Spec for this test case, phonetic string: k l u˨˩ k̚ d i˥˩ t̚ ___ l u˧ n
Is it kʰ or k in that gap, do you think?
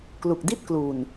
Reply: k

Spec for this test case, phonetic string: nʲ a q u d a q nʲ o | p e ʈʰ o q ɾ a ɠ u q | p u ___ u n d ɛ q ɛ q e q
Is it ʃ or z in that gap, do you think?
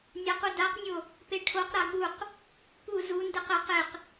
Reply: z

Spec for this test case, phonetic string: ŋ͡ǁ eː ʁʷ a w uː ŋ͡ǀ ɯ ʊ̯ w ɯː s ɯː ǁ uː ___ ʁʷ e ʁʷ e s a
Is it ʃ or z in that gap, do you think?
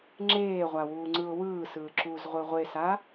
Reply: z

